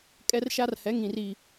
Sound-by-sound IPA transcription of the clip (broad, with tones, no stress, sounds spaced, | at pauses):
kʼ ɛ˦ r ʃ a˦ r h ɛ˨˦ ŋ ĩ˨ r i˨